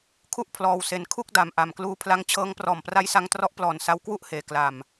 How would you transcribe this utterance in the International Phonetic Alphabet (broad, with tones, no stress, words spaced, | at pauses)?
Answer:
kʰu˥˩ʔpʰlɔː˧wse˧nkʰu˥˩k̚ da˧mʔa˨˩mkluː˦˥ pʰla˦˥ŋt͡ɕʰɤː˦˥ŋ prɔː˨˩mpra˧jsa˧ŋ trɔ˦˥ʔplɔː˨˩n sa˧wkwu˥˩ʔheː˩˦ kla˨˩m